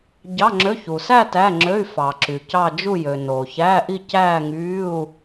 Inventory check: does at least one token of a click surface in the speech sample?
yes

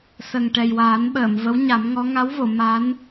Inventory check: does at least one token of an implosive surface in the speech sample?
yes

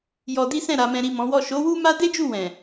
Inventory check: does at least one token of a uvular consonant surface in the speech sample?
no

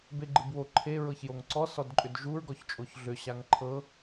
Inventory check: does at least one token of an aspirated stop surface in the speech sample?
yes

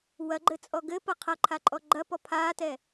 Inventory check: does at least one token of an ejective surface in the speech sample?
yes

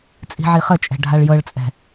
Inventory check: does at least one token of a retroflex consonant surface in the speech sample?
yes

